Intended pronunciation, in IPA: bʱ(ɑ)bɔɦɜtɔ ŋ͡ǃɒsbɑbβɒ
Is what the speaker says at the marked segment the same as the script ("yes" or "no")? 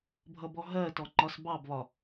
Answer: no